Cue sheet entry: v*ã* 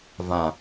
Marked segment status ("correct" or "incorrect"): correct